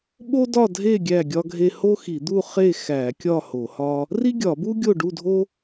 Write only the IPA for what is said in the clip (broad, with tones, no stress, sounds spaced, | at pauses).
ɓ o˥ d ɒ˥˨ dʱ e˥˨ ɡʲ æ˥˨ ɡʲ ɒ˥ ɡʱ e˥ h o˥ x i˧˩˧ d̪ u˥˨ χ e˥˨ x æ˧˩˧ kʲ ɒ˥˨ h o˧˩˧ h ɒ˥ | r i˥ ɡʲ ɒ˧˩˧ b u˥ ɡʲ o˥˨ ɖ u˥˨ dʱ o˥